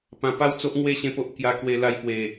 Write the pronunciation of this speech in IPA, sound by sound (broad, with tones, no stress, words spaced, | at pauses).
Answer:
pã˧pa˦wt͡so˦ʔŋwe˥˧ ɕẽ˦po˦ʔ kja˧kwe˧la˧j pwe˨˩